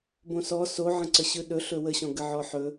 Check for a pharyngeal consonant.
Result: present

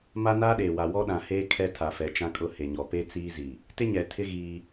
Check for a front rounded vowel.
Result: absent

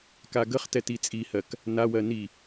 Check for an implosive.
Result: absent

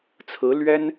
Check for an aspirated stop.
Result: present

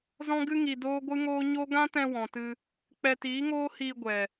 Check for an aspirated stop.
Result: absent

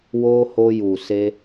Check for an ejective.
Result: absent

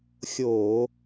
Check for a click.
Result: absent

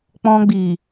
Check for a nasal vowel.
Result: present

